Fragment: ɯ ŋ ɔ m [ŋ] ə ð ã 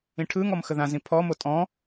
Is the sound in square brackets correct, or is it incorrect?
incorrect